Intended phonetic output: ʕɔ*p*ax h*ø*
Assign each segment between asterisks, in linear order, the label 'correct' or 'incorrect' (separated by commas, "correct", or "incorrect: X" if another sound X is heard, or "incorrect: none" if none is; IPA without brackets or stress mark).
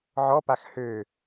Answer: correct, correct